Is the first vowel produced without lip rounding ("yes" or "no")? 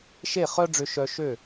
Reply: yes